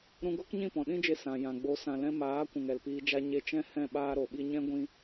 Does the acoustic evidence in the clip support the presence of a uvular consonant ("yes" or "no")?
no